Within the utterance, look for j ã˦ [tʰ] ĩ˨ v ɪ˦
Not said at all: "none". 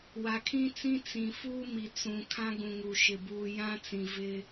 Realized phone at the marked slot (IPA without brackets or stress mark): t͡s